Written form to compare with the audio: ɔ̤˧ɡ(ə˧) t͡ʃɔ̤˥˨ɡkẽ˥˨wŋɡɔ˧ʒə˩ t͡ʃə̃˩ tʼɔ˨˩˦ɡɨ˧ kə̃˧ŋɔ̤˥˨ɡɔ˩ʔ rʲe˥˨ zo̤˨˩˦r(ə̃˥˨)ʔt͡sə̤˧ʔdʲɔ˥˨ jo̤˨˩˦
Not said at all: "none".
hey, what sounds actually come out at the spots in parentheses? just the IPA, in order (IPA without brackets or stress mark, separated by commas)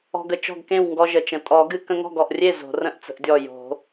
ə˧, ə̃˥˨